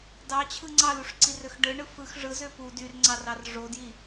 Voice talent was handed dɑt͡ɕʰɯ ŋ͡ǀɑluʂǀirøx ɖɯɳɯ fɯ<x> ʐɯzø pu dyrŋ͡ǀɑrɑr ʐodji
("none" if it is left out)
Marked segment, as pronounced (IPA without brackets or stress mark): x